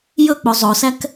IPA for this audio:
j ɵ k͡p o zˤ o s æ k

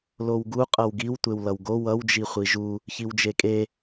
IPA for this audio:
l o w ɡ u qʼ ʌ w ɡ i w tʷ e w l ʌ w ɡ o w ʌ w d͡ʒ i χʷ i ʒ u | ç i w d͡ʒ e kʼ e

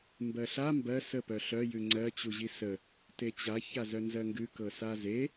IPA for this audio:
m b ɜ ɬ a m b ɜ s ə p œ ɬ œ j ʉ ŋ͡ǀ ɜ t͡ɕ u ʑ i s ə | t e t͡ɕ a ç a z œ n z ɜ ŋ ɡ ʉ k ɤ s a z e

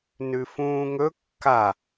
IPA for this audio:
n ʉ f ũː ŋ ɵ kː a

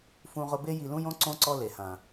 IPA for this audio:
f ũ˦ ʁ ʊ˦ b e˦ j i˧ l ũ˦ j õ˦ ǀ õ˦ ǀ ɔ˦ l e˨ h ã˨

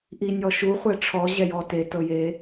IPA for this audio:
ʔ i nʲ ɔ ʃ u χʷ ɛ ʈ͡ʂʰ ɔ ʑ ɛ j ɔ t e t ɤ j e

